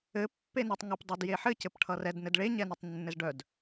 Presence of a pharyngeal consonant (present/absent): present